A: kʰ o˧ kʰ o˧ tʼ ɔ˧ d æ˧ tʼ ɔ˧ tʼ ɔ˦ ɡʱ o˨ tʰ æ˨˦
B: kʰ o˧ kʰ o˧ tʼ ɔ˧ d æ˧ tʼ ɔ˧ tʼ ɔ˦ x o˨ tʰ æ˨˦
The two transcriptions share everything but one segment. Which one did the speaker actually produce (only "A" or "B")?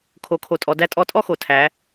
B